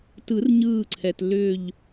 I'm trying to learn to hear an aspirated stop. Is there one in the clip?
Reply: yes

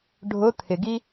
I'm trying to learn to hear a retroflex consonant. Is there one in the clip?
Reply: yes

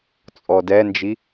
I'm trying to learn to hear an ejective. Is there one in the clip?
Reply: yes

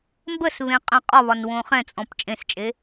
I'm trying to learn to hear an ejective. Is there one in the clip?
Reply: yes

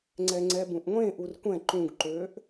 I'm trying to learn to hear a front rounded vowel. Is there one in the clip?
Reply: yes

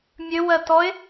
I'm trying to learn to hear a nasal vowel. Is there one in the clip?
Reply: no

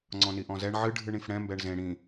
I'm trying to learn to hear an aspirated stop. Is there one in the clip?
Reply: no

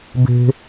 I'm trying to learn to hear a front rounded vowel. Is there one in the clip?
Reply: no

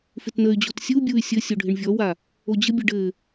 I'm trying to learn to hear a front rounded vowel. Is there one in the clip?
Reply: yes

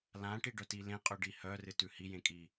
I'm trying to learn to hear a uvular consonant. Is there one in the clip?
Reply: yes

